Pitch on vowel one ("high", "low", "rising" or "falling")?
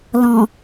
low